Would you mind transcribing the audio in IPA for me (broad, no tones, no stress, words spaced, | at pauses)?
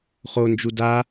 χo nd͡ʒuda